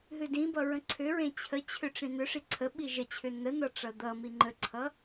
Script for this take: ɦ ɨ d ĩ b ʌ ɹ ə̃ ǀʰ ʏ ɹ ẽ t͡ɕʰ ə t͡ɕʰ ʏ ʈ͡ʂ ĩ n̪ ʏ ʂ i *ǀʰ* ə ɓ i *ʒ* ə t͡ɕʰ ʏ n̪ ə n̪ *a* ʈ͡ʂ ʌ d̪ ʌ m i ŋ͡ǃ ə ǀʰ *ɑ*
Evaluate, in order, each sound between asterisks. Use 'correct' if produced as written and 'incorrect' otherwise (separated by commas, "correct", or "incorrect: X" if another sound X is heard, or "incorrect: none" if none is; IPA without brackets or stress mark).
correct, correct, incorrect: ʌ, incorrect: ʌ